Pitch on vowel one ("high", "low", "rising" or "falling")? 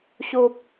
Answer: high